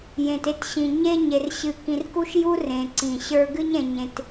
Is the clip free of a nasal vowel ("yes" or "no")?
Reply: no